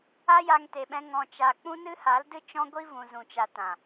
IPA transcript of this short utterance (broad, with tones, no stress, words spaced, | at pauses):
a˦ja˧ŋte˨ɓɛ̃˧ ŋɔ̃˨t͡ʃa˨ k͡pũ˦nɨ˦ha˨˦ldɨ˦ t͡ʃɔ̃˦ɡʷi˦ vũ˨zũ˨t͡ʃa˨ tã˨